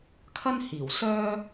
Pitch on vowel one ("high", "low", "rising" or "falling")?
high